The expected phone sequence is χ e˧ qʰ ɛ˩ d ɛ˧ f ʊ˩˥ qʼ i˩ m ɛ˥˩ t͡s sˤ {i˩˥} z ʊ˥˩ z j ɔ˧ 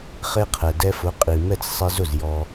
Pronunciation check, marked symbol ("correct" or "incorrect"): incorrect